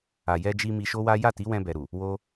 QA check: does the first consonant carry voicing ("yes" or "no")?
yes